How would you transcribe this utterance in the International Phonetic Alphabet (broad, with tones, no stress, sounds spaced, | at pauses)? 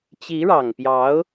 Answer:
t͡ɕ i˧˥ ɻ ɑ˨˩ ŋ p j ɑ˧˥ ʊ̯